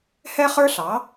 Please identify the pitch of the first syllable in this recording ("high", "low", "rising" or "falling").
high